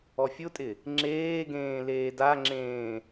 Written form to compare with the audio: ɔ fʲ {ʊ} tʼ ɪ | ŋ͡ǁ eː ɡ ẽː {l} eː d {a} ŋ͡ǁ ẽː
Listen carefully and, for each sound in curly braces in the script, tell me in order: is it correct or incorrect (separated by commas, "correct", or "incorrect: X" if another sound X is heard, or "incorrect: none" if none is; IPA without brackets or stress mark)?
correct, correct, correct